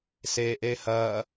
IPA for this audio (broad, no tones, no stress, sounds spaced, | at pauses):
s e ʔ e h ɐ